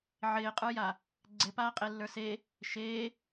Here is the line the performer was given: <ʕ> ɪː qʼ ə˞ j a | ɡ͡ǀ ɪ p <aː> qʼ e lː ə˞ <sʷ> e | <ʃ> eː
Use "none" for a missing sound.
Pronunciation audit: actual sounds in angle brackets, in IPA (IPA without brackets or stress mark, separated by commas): ʕ, aː, s, ʃ